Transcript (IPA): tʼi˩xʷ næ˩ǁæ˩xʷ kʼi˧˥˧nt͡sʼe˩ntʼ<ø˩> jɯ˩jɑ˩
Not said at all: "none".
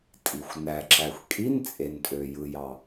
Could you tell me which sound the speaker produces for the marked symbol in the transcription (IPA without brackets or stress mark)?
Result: ø˩